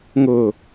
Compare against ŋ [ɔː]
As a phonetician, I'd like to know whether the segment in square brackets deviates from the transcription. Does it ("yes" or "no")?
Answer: yes